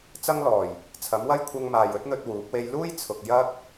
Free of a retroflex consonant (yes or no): yes